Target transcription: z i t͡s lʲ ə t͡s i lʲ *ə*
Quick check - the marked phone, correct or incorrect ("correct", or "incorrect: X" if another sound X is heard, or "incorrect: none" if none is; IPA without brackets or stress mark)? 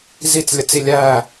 incorrect: æ